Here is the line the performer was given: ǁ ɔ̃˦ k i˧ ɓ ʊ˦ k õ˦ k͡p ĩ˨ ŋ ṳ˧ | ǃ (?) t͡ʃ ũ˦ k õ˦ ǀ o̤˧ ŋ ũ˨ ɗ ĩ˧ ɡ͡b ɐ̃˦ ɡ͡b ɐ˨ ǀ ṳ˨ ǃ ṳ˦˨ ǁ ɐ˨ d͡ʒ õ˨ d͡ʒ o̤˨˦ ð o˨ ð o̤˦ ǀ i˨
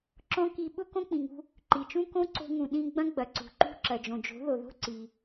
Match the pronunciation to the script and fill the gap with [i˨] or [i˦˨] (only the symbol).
i˨